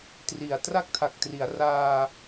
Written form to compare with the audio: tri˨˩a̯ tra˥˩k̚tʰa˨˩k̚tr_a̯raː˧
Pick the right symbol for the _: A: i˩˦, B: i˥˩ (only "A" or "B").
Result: A